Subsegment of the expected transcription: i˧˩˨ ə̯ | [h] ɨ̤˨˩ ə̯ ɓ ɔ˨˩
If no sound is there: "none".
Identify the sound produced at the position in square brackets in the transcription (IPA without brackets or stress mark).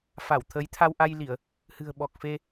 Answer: h